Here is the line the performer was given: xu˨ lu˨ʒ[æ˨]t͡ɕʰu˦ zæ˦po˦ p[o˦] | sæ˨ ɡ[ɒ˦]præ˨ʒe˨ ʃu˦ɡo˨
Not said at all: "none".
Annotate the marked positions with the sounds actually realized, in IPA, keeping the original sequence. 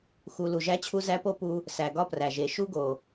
æ˦, u˦, ɒ˦

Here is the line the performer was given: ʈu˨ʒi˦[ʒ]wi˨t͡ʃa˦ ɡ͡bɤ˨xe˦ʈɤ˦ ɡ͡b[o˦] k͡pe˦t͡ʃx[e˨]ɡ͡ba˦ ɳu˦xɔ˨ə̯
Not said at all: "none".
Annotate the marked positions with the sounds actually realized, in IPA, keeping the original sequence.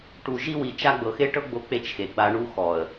none, o˦, e˨

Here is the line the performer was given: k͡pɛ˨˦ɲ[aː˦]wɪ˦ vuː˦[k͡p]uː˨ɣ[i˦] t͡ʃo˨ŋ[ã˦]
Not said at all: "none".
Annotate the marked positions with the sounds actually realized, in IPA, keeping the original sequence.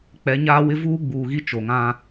aː˦, ɡ͡b, i˦, ã˦

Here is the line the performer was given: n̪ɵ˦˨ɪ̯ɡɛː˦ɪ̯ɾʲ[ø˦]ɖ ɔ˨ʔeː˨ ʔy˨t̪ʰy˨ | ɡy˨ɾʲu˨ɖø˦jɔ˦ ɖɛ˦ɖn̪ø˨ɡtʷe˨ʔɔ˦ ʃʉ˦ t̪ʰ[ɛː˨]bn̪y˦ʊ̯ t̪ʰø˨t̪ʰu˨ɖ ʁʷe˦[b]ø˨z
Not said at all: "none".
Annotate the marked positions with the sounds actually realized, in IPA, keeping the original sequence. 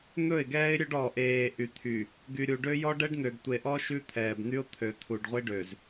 ø˦, ɛː˨, ɖ

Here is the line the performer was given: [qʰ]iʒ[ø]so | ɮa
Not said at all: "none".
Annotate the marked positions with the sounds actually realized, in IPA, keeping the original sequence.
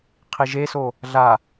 qʰ, e

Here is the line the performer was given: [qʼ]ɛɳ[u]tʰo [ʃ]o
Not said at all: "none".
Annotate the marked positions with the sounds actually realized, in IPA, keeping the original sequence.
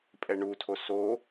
pʼ, u, s

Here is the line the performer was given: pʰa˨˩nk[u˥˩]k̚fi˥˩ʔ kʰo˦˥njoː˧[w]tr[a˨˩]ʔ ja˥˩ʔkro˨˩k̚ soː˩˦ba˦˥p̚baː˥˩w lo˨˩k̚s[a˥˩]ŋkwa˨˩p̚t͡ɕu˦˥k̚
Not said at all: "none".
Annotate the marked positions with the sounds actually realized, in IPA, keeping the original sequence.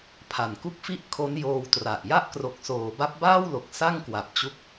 u˥˩, w, a˨˩, a˥˩

